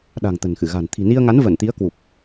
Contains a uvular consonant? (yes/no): no